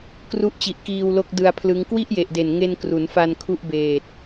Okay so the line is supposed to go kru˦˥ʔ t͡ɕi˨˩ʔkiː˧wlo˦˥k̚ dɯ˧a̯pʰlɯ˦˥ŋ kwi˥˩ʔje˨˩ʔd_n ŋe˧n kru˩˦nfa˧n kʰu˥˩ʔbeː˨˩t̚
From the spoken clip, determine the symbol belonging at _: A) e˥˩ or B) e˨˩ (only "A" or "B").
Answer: B